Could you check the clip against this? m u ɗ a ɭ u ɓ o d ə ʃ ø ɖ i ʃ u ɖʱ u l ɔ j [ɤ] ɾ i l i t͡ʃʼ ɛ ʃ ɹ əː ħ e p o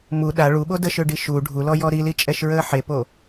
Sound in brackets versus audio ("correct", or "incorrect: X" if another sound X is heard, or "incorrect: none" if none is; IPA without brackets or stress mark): incorrect: ɔ